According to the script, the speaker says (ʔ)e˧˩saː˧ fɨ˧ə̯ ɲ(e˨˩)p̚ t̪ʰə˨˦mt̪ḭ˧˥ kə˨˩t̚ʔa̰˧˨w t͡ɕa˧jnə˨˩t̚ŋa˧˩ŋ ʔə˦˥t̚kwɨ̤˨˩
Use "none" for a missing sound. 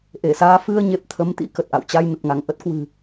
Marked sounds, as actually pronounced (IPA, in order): ʔ, e˨˩

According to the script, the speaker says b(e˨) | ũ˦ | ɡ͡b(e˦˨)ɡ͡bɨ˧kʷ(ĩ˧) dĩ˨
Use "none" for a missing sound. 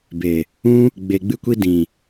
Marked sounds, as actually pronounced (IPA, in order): e˨, e˨, i˧

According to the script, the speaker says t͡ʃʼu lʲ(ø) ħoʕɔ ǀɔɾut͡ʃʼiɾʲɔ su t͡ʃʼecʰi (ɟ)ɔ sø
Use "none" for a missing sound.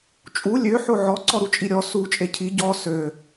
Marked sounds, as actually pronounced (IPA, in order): ø, ɟ

